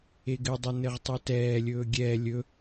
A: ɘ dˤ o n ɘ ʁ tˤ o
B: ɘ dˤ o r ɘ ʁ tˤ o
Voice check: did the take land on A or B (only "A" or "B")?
A